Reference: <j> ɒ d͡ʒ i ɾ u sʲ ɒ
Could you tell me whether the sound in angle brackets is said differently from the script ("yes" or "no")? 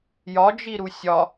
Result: no